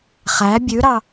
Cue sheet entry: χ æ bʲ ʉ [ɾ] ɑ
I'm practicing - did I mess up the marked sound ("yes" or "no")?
no